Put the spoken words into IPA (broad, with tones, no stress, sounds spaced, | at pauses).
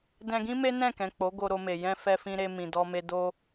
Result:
d ɛ̃˧ ɡ ĩ˦ m e˦ n ɛ̃˦˨ k ɛ̃˨ k͡p o˨˦ ɡ o˧ ɾ o˧ m e˨ j ɛ̃˧ f ɛ˧ f ĩ˧ ɾ e˧ m ĩ˨ d ɔ˧ m e˧ d o˧